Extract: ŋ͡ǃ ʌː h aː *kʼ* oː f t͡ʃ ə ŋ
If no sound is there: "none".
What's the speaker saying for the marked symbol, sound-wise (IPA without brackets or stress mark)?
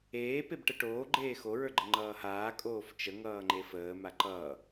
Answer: kʼ